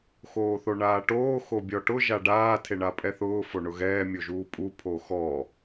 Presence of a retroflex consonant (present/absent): present